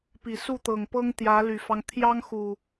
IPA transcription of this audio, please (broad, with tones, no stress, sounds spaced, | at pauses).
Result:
p i˨˩ s u˥˨ t̪ ɤ˨˩ ŋ p ɤ˦ ŋ t̪ j ä˨˦ l y˨˩ f ɑ˦ ŋ t̪ʰ j ɑ˦ ŋ x u˨˩